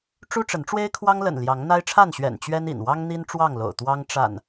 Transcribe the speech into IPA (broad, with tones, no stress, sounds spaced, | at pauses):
ʈ͡ʂ u˦ ʈ͡ʂ ə˨˦ n ʈ͡ʂ w e˦ ɪ̯ kʰ w ɑ˦ ŋ l ə̰˨˩ n l j ɑ˨˦ ŋ n̪ a˦ ɪ̯ ʈ͡ʂʰ a˥˨ n ɕ ɥ ɛ̰˨˩ n t͡ɕ ɥ ɛ˦ n ḭ˨˩ n w ɑ˦ ŋ n̪ i˦ n ʈ͡ʂ w ɑ˥˨ ŋ l o̰˨˩ ʊ̯ t̪ w ɑ˦ ŋ ʈ͡ʂ a̰˨˩ n